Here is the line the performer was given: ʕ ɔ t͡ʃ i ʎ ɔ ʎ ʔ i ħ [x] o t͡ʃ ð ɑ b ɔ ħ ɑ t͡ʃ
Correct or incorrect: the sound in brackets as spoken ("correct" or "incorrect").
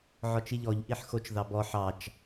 correct